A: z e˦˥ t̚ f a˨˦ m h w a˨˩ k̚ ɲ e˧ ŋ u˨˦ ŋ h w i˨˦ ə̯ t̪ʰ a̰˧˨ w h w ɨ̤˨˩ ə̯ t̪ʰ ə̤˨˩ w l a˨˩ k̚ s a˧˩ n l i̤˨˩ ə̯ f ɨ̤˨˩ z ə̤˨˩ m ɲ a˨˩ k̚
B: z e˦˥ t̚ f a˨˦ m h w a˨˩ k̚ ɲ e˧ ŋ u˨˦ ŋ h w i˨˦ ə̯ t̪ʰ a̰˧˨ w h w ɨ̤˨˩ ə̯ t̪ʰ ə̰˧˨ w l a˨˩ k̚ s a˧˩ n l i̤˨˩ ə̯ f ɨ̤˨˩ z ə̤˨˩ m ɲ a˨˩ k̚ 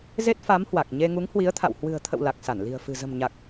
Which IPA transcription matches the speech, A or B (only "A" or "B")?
B